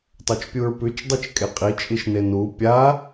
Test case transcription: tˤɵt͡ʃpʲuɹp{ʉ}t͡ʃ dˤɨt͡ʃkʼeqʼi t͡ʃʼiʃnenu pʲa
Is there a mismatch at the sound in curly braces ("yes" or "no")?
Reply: no